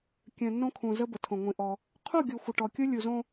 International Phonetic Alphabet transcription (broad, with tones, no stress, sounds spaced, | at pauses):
kʲ œ̃˨ nː õ˦ kʰ ũ˨ z ə˦ b ə˨ tʰ õ˨ ŋʷ ĩ˨ ʔ ɔ˦ | qʰ u˦˨ ɡʲ o˨ xʷ ə˨ ʈ ɔ˨ kʲ o˦ lʲ u˨ z õ˦